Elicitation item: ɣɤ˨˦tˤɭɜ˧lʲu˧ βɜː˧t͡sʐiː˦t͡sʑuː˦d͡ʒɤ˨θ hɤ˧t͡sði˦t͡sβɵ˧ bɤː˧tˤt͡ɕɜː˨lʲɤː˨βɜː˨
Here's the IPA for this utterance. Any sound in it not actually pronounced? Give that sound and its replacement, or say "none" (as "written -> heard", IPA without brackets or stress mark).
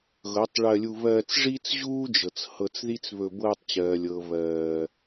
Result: θ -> t͡s